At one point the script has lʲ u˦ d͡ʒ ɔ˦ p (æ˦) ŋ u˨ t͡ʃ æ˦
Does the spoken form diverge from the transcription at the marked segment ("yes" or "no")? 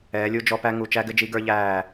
no